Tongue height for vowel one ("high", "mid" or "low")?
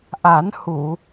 low